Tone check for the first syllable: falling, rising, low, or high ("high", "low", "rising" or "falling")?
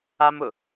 high